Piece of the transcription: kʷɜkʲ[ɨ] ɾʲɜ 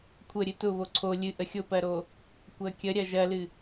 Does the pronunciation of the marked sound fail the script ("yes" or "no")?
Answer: yes